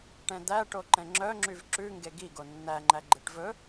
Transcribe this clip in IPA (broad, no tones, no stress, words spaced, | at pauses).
ʈɛ̃d̪æ ʈoǃɛ̃ŋ͡ǁœŋ͡ǁyv ǁʉŋɡe ɡi ɡonːæŋ͡ǃæɡ͡ǃeʈ vɵ